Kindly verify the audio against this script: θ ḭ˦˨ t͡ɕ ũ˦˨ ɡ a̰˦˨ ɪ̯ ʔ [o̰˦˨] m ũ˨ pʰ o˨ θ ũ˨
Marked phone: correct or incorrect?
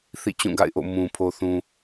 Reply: correct